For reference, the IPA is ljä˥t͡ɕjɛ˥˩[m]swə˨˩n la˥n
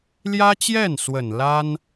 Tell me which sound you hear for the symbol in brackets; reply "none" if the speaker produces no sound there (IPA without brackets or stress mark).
n